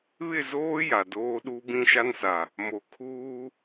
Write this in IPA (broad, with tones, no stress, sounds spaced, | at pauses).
β ɪ˦˨ z oː˦ j a˨ d oː˦ ɗ u˦ b ĩ˦ ʃ a˦ n s a˨ | m o˨ kʰ uː˦